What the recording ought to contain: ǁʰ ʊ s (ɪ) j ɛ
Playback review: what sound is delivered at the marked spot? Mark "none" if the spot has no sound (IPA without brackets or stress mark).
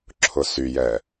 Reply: y